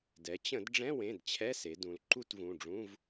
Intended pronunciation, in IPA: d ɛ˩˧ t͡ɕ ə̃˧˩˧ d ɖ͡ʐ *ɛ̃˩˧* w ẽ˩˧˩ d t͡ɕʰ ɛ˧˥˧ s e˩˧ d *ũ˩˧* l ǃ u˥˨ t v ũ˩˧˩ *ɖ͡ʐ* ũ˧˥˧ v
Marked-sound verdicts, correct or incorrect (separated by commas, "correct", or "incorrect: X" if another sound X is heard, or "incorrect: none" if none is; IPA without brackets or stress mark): incorrect: ɛ̃˧˥˧, correct, correct